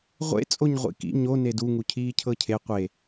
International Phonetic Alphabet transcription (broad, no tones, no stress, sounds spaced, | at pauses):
ʁʷ ḛ t͡sʼ o ɲ ʁʷ ḭ k ḭ ɲ o n e d u ŋ u cʰ iː cʰ ɤ cʰ e qʷ e